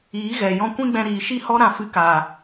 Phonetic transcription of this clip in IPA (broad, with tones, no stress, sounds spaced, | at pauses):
iː˨˦ ɣ ɛ˨ j ɔ̃˧ kʷ ĩ˦ ɡ͡b ɛ̃˧ ɾ iː˨ ʃ i˦ h ɔ˦ ɾ ã˧ f ɨ˧ k aː˨